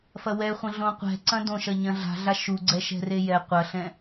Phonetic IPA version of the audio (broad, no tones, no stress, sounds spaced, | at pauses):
f ɐ w ɛ χʷ ɐ̃ ɮ õ qʷ ɛ̤ ǀ ɐ̃ d õ ʃ ɐ ɲ ɐ̃ ɮ a̤ ɮ a ʃ u ɡ͡ǀ ɛ ʃ ɛ̤ r e j ɛ qʷ ɐ ɬ ɛ̃